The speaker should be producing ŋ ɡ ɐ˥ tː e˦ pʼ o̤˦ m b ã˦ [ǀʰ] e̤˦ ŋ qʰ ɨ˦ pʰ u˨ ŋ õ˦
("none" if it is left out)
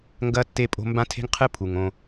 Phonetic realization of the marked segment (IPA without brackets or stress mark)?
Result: tʰ